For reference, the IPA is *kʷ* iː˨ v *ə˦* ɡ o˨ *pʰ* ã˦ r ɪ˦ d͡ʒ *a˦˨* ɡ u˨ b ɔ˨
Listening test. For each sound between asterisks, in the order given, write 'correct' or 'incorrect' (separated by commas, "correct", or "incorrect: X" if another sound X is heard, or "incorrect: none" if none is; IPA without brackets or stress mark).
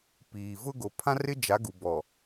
incorrect: p, incorrect: ʊ˦, correct, incorrect: a˨˦